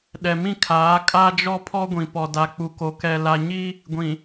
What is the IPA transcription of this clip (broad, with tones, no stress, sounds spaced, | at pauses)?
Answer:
ɗ ɛ˨ m ĩ˦ kʰ aː˨˦ kʼ a˦ d͡ʒ ɔ˦ pʰ ɔ˦ ɡʷ ĩ˨ p ɔ˨ d a˨ k͡p u˨ k o˨ k ɛ˨ l a˨ ɲ i˦ | ɡʷ ĩ˨